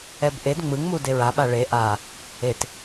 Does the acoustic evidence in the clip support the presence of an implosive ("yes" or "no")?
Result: yes